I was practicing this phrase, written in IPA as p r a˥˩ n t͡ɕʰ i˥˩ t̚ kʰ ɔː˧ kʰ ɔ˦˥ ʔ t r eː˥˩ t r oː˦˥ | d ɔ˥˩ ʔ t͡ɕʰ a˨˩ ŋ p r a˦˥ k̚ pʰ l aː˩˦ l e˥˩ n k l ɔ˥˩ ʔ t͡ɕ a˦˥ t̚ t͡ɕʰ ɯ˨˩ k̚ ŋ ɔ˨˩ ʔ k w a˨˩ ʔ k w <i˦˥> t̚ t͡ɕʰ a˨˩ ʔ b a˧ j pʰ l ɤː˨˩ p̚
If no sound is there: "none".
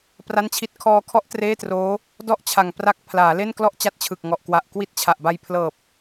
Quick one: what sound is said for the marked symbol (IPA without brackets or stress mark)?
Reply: i˥˩